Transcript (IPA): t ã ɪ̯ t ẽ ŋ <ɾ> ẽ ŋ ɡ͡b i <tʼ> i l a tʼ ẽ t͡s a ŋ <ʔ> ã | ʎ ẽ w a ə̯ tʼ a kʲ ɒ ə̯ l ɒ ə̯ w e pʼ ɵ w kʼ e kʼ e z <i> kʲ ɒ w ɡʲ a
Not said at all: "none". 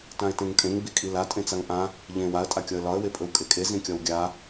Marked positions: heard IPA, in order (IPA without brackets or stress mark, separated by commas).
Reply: tʼ, kʼ, ʔ, ĩ